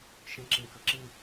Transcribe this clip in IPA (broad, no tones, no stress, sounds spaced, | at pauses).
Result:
ʃ ə̃ ǁ ẽ k ə ǁ ɨ